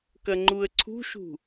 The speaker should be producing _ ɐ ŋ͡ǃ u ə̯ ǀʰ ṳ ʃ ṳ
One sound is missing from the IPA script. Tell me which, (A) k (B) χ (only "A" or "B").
A